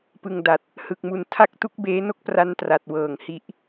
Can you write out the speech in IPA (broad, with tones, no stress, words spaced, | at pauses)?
pɯ˨˩ŋda˨˩t̚ | hɯ˨˩k̚mu˧ntʰa˥˩k̚tu˥˩k̚ beː˦˥no˦˥k̚ pra˦˥ntra˨˩t̚wɤː˨˩ŋ hi˦˥ʔ